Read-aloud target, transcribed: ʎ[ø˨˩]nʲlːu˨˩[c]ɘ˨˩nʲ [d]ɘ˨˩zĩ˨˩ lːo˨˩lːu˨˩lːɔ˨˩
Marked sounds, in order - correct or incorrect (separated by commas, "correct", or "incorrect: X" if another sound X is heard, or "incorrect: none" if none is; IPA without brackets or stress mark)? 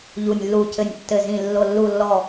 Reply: incorrect: u˨˩, correct, incorrect: tː